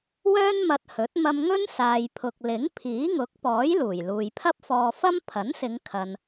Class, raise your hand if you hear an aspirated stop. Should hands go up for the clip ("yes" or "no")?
yes